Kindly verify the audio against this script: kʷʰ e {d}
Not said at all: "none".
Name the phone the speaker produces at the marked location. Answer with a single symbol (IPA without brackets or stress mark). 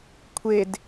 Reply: d